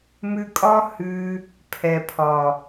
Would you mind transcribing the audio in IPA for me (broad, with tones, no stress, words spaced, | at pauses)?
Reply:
mʉ˧kʼɒ˦ hʉ˧ | pʰɛ˨pʰɒ˨